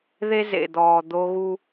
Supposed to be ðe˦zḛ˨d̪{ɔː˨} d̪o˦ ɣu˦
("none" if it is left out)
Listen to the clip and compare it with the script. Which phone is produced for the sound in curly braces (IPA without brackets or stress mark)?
ɔː˨